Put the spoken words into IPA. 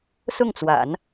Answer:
sʊ˥˩ŋt͡swa̰˨˩˦n

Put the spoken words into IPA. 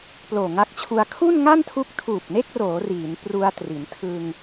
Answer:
ploː˨˩ŋa˦˥k̚t͡ɕʰu˧a̯ kʰu˥˩n ŋa˥˩ntʰu˦˥k̚ tʰuː˨˩p̚ne˥˩k̚roː˩˦ riː˩˦npru˧a̯tri˩˦n tʰɯ˧ŋ

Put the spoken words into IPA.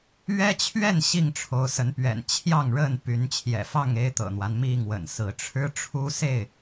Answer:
ɥɛ˦t͡ɕʰɥɛ˥˨n ɕi˥˨ŋʈ͡ʂʰo˨˦ʊ̯ sə˨˦npɥɛ̰˨˩n t͡ɕʰjɑ˥˨ŋɻə˥˨n py˨˦nt͡ɕʰjɛ̰˨˩fɑ˥˨ŋ e˦ɪ̯t̪ɤ̰˨˩n̪wa˦n mi˥˨ŋ wə̰˨˩nsɹ̩˨˦ ʈ͡ʂʰɻ̩˦ʈ͡ʂʰu˦se˥˨ɪ̯

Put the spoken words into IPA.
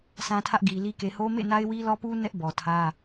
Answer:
sʰã˦tʰä˦ʔɡi˨li˦ ke˨ho˦mḛ˦˨na˦ɪ̯ wi˦lɔ˦pu˦ nɛ˦ʔbɔ˨tʰä˦

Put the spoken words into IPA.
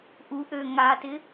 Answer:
ʔuʔø ŋatɪ

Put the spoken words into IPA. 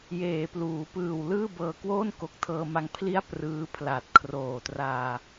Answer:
jeː˩˦pluː˩˦pɯː˨˩w lɯː˥˩bɤː˧kwoː˥˩n ko˨˩k̚tʰɤː˧ma˧ŋ pʰli˦˥a̯ prɯː˦˥ pʰla˨˩t̚kʰroː˨˩traː˧

